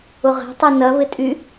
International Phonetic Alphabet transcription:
ʊ ʁ ɛ̤ tˤ u n ɐ β ɪ tʼ y

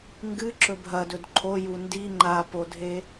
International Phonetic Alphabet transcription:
ŋ ɡ ɨ ǁ ɵ bʱ ɐ d ɵ d ǃʰ o j u n d i ŋ͡ǃ a p o dʱ e

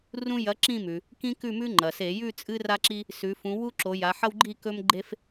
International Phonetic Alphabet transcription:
r ũ˦ j ɐ˨˥ ǁ ĩ˦˨ m ʉ˩ | k ĩ˦ k ʉ˦˨ m ʉ˦ ŋ͡ǃ ɐ˩ s e˧˩˧ j ʉ˦˨ t͡sʼ ɨ˦ r a˦ ǁ i˦ | s ʉ˩˧ f ũ˩˧ w u˦ ǁ o˩˧ j a˩˧ ħ ɐ˦ w ɡ͡ǃ i˦˨ k ɵ˦ m ɡ͡ǃ e˦ f

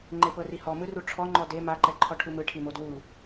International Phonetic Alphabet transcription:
ŋ͡ǃ e p ɤ r i h ɔ m ɯ r u ʈ͡ʂʰ ɔ ŋ͡ǃ ɔ d e m a ǃ ɛ ǃʰ ɔ ʈʰ u m ɯ ʈʰ i m o d w u

